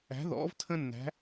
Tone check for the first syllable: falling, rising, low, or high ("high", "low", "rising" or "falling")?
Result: rising